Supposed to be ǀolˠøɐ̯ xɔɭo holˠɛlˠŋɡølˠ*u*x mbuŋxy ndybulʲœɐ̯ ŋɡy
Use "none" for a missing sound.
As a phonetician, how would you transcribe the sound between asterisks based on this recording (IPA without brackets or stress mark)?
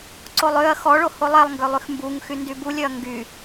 y